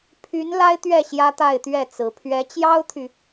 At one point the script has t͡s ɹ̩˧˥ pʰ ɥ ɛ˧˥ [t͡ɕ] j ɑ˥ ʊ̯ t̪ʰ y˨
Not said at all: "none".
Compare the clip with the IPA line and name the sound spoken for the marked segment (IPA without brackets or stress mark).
t͡ɕ